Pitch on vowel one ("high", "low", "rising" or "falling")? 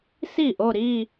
falling